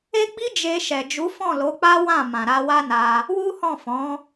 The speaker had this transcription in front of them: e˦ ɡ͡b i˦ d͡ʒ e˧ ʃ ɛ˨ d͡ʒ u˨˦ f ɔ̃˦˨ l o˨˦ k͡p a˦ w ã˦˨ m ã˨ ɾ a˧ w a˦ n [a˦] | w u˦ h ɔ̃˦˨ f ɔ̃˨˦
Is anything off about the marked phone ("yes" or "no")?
yes